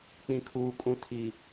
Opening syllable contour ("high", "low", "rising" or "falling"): low